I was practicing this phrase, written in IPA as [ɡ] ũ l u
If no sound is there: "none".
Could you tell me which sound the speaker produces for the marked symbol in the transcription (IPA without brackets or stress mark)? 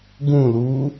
ɡ